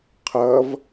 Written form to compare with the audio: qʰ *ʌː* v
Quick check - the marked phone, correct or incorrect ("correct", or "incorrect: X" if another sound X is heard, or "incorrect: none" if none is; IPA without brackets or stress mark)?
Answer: incorrect: ʌ